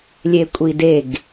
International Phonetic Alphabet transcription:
lʲekʷʼideɡ

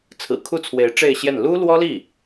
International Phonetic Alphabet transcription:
t͡sʰɹ̩˨˩kʰu˥˩t͡sʰwe˧˥ɪ̯ ʈ͡ʂe˥˧ɪ̯ɕjɛ˥˩n lu˥lwɔ˥li˥˩

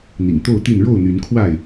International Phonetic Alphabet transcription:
n̪ḭ˨˩ŋt̪o˥˨ʊ̯t̪i˥˨n ɻo˥˨ʊ̯n̪y˨˦nkʰwa˥˨ɪ̯

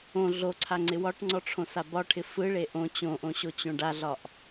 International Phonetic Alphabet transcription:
õ ɮoǀʰaŋ͡ǀɪ wɒʈŋ͡ǀɔʈ͡ʂʰõsa bɒʈʰɪ fɯɭe ʔõ t͡ɕõʔõɕot͡ɕõ ɖaɮɒʔ

